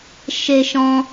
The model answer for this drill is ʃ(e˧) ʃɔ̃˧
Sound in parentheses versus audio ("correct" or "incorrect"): correct